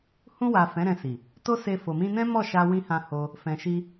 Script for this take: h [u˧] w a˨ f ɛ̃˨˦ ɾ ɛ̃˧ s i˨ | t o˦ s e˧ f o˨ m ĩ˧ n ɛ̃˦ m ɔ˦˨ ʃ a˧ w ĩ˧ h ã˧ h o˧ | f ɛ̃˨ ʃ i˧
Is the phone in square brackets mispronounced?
yes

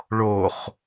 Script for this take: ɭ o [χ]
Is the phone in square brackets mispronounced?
no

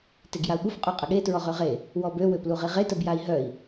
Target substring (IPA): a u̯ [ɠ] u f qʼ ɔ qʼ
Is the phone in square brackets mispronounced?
no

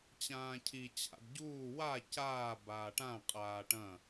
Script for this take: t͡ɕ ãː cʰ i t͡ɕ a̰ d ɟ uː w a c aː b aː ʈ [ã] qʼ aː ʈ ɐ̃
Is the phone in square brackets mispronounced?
no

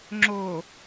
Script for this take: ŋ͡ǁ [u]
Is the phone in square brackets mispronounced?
yes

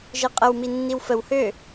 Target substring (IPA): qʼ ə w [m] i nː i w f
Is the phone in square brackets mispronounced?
no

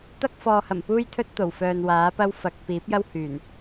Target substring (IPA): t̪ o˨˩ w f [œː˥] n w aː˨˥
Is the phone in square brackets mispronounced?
yes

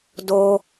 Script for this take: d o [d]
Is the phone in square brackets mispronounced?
yes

